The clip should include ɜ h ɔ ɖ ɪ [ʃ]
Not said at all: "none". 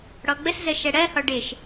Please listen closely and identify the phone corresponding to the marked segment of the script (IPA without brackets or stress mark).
ʃ